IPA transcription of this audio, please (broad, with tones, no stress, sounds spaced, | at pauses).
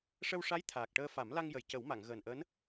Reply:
ʂ ə˧ w ʂ a˧˥ j t̪ʰ aː˨˩ k̚ ʈ əː˧ f a˨˩˦ m l a˧ ŋ j ə˨˩˨ j c ə˨˩˦ w m a˨˩˨ ŋ ɣ əː˨˩ n ʔ əː˧˥ n